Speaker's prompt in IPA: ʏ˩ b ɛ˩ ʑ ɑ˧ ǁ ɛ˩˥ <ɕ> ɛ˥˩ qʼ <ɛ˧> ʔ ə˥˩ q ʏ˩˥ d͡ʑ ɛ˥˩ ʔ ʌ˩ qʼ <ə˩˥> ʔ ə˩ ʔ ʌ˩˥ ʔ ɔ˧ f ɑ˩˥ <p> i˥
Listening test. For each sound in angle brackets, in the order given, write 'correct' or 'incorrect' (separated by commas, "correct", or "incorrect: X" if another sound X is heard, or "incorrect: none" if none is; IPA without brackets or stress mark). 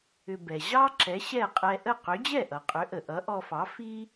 correct, correct, incorrect: ʏ˩˥, incorrect: f